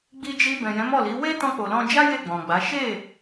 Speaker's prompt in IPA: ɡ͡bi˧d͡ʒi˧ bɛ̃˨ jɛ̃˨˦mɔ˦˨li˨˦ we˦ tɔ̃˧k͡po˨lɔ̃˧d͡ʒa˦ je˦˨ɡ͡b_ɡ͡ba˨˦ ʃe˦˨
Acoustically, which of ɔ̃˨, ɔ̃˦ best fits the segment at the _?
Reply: ɔ̃˨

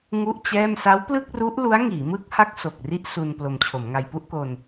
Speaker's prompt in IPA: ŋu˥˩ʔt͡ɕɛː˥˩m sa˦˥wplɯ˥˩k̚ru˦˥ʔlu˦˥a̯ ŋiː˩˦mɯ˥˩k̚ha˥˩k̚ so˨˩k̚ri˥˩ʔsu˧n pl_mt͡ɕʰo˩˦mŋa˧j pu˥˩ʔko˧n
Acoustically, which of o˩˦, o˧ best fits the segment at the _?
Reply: o˧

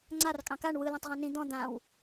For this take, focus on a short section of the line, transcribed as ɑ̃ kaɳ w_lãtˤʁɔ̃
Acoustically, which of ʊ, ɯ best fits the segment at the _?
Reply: ɯ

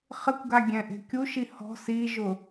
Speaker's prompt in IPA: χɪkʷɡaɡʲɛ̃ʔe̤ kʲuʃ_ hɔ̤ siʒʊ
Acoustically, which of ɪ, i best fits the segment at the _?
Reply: i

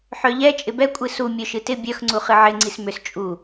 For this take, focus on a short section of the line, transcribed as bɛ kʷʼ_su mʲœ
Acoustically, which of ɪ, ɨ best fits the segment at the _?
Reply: ɨ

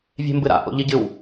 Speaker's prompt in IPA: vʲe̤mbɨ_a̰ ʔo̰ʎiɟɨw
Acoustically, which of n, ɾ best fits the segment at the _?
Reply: ɾ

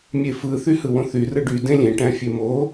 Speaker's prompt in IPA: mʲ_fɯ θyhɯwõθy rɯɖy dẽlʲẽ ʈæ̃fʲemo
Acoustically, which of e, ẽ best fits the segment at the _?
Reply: e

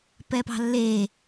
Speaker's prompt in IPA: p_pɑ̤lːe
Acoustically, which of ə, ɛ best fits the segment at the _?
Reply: ɛ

